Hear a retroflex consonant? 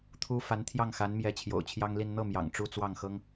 yes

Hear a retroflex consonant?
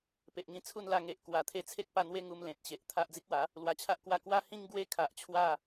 no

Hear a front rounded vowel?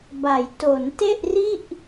no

